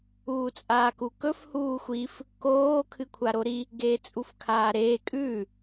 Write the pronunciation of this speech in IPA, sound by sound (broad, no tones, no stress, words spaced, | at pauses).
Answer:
uːt͡sʼaːkukɵf huːxʷif | koː kʰɨkʷʰaɾoɾi | ɡeːt͡sʼufkʰaːɾeː kʼʉ